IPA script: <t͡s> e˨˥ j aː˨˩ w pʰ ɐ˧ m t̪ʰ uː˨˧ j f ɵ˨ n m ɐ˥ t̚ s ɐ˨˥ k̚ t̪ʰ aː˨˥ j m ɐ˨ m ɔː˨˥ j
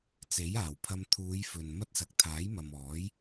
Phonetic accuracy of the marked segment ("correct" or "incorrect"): correct